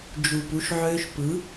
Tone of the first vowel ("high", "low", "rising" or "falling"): low